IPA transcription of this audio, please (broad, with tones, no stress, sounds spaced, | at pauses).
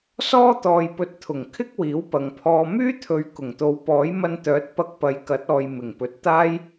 s ɔː˥ t̪ ɔː˧ j p ɵ˧ t̚ t̪ʰ ʊ˨˩ ŋ kʰ ɪ˥ k̚ w iː˨˥ w p ɐ˨ ŋ pʰ ɔː˧ m yː˥ t̪ʰ ɵ˨˧ ɥ k ʊ˨˩ ŋ t̪ o˨˧ w p ɔː˨˥ j m ɐ˧ n t̪ œː˨˥ t̚ p ɐ˧ k̚ p ɐ˨ j k ɐ˨˥ t̚ ɔː˨ j m ɪ˨˩ ŋ p ɵ˨ t̚ t̪ aː˥ j